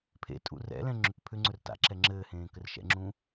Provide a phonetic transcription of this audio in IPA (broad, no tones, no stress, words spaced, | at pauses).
pʰḛ tʼṵrɛ̰lɛ̃ ŋ͡ǁʏk pʰʏŋ͡ǀɵr ta̰ ǁɛŋ͡ǁɘːhẽː kɘrʃɛ̰ŋ͡ǁũː